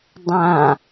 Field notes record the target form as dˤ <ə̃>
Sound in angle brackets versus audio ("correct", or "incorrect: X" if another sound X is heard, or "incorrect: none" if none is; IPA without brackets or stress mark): incorrect: ã